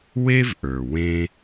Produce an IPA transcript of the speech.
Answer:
we˦vʔə˞˨ wẽ˧

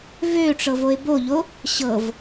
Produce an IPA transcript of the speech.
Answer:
vøʈ͡ʂɤvoɪ̯ boʎo | ɕɤv

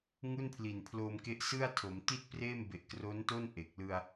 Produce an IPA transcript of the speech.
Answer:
ŋu˥˩npʰli˨˩npʰlo˧mke˦˥ʔ sɯ˥˩a̯tʰo˩˦m ti˥˩t̚preː˥˩m be˨˩ʔkro˦˥nto˥˩n ʔe˨˩k̚ lɯ˧a̯

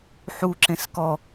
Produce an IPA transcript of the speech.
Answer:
ħuǁẽs kɔ

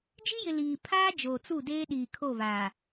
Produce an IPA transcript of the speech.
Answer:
d͡ʒi˦jɪ˨ liː˨ pʰaː˦ d͡ʒoː˨t͡su˦˨deː˦ ɗiː˨kʰo˦˨βaː˨

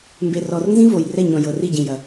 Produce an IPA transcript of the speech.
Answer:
mbe˨rɔ˨rnzĩ˦ vo˨j rɛ˦˨ɲɔ̃˨ jɤ˨ri˦˨ ɟĩ˨jɐ˨

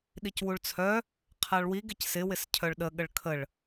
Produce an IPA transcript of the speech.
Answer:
ɗicwuɭt͡sʰœ | qʰaɭwiɡ ɪcsɪ wɪscʰœɭɗə ɠəɭkʰəɭ

